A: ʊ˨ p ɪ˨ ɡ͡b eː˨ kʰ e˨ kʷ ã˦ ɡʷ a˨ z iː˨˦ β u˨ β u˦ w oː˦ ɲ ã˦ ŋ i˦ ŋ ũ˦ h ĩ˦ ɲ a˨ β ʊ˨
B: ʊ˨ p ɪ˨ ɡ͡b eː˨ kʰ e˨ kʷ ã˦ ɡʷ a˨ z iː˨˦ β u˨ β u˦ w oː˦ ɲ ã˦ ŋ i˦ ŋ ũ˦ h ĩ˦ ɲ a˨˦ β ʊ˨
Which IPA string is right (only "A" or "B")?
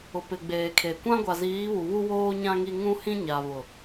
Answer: A